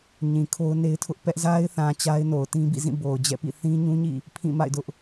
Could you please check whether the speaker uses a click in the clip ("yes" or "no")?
no